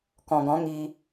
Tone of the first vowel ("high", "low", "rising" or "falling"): low